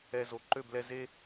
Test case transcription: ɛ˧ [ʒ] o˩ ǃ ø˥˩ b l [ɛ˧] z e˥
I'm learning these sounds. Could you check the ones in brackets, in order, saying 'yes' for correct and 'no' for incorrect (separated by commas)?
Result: no, yes